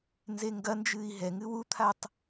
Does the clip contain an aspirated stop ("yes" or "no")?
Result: yes